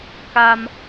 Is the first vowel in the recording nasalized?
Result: no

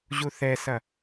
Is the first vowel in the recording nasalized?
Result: no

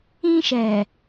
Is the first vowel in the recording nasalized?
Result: yes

